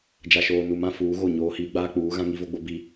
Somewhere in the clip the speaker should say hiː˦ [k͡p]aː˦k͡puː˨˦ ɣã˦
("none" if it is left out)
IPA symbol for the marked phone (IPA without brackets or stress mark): ɡ͡b